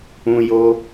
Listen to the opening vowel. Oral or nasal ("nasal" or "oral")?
nasal